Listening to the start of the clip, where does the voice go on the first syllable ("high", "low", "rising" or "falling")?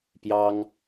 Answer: high